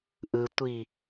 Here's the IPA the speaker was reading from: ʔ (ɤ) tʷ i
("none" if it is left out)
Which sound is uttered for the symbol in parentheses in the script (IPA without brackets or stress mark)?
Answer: ɯ